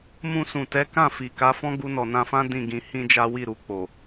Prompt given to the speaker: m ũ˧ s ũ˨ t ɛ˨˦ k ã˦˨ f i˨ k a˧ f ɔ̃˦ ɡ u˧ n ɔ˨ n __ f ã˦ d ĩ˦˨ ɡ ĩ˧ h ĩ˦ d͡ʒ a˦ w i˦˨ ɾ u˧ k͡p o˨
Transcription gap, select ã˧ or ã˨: ã˧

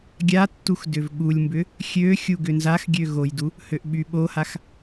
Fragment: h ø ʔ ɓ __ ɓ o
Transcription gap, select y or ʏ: y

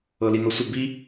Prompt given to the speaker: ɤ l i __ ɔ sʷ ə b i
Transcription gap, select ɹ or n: n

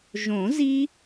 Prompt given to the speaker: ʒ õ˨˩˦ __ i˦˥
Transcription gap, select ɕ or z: z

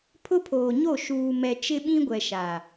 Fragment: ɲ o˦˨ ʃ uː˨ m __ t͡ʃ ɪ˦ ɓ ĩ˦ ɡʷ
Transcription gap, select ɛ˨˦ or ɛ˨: ɛ˨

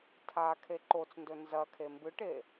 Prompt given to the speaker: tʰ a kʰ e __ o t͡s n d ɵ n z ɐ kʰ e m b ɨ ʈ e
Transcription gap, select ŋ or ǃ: ǃ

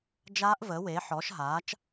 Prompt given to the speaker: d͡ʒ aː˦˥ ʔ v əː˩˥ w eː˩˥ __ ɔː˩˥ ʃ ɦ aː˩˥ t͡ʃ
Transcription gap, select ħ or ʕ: ħ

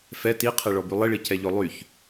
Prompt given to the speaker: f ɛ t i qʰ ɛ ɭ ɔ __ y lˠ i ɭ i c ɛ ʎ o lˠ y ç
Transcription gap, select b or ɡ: b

